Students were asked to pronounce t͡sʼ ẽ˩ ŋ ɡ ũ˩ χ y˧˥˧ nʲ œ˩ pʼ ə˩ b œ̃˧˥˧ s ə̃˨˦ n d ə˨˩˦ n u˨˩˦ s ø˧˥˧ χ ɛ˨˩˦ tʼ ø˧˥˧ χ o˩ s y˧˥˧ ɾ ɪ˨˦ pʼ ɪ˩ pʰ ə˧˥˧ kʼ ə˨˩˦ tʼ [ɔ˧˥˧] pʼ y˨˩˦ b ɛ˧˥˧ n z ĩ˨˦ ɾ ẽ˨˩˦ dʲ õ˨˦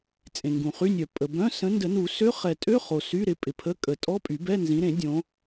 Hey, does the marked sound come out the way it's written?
yes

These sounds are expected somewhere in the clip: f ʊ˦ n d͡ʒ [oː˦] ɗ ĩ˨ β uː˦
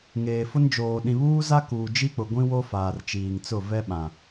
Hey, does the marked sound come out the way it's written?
no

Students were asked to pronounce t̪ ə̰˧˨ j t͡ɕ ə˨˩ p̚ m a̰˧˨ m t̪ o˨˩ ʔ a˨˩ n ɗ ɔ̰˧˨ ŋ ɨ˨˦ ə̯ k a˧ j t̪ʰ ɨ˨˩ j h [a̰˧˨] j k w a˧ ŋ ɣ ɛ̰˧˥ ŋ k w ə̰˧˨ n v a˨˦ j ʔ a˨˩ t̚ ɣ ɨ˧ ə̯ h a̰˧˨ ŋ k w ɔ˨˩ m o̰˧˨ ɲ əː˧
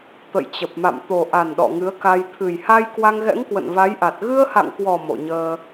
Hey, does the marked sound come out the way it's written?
no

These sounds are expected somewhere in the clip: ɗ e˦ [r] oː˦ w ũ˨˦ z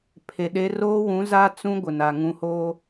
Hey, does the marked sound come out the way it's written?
yes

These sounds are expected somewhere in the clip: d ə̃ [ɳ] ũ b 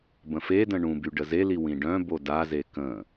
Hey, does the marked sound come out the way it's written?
yes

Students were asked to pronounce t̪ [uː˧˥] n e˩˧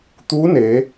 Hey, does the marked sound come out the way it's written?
yes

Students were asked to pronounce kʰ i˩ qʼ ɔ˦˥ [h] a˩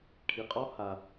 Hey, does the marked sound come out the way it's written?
yes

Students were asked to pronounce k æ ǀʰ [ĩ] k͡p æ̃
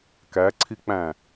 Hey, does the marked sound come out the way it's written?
no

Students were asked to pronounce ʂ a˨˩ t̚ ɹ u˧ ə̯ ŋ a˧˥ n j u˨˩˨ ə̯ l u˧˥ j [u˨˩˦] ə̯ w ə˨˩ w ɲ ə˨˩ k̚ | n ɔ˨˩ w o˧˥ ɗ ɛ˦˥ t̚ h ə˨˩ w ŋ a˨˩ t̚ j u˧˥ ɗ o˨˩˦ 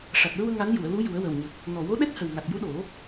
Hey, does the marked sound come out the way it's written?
yes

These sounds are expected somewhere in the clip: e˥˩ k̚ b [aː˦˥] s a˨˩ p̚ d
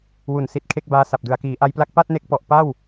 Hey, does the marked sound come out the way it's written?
yes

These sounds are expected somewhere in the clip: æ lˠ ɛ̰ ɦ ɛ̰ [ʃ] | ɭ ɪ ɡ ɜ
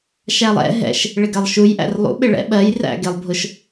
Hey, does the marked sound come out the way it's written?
yes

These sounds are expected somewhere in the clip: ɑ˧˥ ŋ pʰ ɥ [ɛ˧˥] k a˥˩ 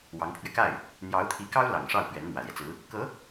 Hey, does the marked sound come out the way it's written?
no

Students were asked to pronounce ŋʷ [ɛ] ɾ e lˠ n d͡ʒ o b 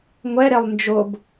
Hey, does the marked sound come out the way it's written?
yes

